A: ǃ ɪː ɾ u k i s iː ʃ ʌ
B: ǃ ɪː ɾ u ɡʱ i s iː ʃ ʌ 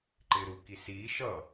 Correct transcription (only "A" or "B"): A